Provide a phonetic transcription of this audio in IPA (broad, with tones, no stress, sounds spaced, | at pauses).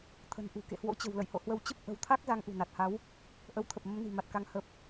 t̪ʰ ə̤˨˩ n ʔ ṳ˨˩ k ḛ˧˨ h w o̰˧˥ t͡ɕ ə̤˨˩ w l ə̰˧˨ j h o̰˧˨ h w ə˧ w t͡ɕ ə˦˥ p̚ ʔ ə̤˨˩ w t̪ʰ a˦˥ k̚ z a˧ ŋ ʔ ṳ˨˩ n a˨˩ t̚ h a˨˦ w | ʔ ə˨˦ w t̪ʰ ə˨˩ p̚ m ə˨˦ m n i̤˨˩ m a˨˩ t̚ k a˨˦ ŋ h ə˨˩ p̚